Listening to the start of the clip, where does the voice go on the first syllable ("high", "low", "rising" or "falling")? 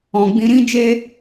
low